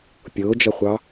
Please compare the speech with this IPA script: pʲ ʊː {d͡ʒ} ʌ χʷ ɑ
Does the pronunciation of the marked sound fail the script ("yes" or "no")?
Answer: no